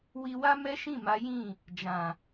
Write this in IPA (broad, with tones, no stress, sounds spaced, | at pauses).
w i˧ w a˦ m ɛ˦ ʃ ĩ˦˨ m a˨˦ j ĩ˦˨ | d͡ʒ ã˨